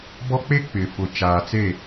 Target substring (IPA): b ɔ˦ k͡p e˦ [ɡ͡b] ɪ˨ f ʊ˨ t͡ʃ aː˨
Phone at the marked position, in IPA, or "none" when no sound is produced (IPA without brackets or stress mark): k͡p